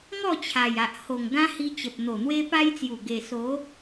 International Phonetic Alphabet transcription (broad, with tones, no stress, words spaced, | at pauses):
ŋɔ˥˧t͡ɕʰa˨˩ja˨ʔ ho˨˩ŋ ɡã˦hi˧t͡ɕə˨p̚ n̪o˨˩n̪we˧pa˧jt͡sju˨˩ ɡe˨˩so˨˦